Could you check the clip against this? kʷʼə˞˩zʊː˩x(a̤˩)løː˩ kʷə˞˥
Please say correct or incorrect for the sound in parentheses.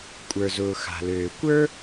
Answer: correct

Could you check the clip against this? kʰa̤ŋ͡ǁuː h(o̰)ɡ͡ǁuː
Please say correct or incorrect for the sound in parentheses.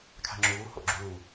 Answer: correct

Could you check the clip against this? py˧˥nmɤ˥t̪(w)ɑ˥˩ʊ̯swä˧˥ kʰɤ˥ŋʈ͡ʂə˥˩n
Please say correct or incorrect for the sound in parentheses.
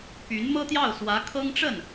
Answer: incorrect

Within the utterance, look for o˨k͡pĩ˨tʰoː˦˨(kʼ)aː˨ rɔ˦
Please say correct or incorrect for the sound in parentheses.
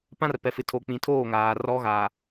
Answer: incorrect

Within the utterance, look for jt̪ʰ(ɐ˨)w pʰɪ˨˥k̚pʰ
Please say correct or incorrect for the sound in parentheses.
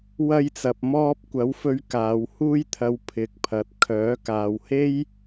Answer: correct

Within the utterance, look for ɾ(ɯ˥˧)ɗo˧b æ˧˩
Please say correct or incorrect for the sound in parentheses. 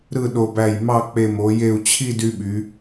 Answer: correct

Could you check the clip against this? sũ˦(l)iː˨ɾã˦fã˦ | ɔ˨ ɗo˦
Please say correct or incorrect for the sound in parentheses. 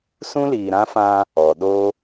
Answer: correct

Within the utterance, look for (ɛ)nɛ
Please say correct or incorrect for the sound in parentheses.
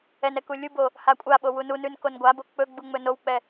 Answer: correct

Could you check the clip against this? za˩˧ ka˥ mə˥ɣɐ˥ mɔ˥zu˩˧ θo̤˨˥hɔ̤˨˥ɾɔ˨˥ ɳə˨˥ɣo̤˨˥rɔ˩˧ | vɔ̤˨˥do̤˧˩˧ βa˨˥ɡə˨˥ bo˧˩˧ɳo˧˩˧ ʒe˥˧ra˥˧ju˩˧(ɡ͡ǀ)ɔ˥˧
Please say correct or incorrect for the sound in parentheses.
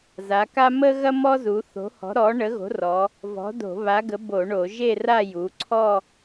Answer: incorrect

